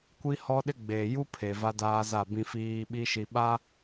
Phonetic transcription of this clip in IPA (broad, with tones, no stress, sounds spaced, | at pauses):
kʷ i˦ h ɔ˦ ɗ ɪ˦ ɡ͡b eː˨ j u˦ pʰ e˨ v a˦ d aː˦ z a˦˨ b ĩ˦ f iː˦ ɓ i˦ ʃ i˨ ɓ a˦